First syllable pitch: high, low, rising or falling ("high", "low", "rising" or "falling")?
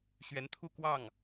rising